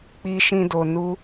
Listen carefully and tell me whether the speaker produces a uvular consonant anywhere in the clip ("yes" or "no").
no